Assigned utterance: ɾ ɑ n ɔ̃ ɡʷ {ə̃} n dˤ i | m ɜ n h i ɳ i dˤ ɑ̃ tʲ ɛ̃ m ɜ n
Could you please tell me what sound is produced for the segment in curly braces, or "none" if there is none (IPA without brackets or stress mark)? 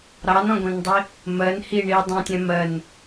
ɛ̃